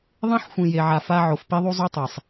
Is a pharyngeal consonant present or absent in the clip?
present